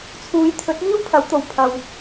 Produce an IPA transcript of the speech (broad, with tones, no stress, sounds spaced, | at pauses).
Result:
t͡sʰ uː˨˧ j t̪ʰ ɵ˨˥ t̚ m iː˥ w pʰ ɐ˨˥ w t̪ o˨˧ w pʰ ɐ˧ w